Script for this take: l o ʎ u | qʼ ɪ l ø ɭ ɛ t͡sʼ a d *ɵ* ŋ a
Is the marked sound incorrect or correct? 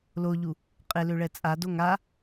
incorrect